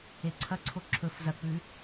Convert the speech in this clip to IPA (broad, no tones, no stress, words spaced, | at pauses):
eǀʰɐǀʰo ǁʰɵf zɐk͡pʉ